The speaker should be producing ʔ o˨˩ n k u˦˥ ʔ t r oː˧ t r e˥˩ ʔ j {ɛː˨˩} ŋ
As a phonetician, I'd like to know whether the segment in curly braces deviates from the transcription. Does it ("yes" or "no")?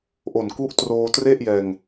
yes